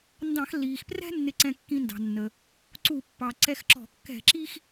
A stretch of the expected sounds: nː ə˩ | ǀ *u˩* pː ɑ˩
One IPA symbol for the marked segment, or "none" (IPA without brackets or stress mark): u˧˩˧